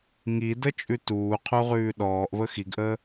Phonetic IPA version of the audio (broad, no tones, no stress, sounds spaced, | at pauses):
ŋ i d ə t͡ʃʼ ʉ t uː qʰ u ʁ ʉː ɗ ɔː ʔ v ə x i ɡ ʔ əː